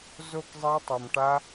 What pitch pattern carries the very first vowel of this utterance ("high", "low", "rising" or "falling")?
falling